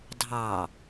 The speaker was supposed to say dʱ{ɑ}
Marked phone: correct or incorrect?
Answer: correct